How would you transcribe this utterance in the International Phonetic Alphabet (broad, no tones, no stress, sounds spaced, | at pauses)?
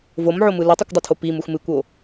v o m ʕ o m ɯ l u tˤ u kʷ dˤ o tʰ o p i m u x m ɨ kʷ o